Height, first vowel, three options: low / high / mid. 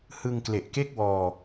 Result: high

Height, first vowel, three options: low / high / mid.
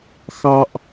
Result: low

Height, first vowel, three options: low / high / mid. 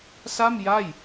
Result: low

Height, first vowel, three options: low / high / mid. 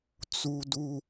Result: high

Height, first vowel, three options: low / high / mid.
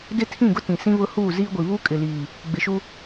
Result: high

